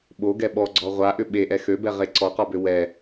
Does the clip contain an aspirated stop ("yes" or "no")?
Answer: no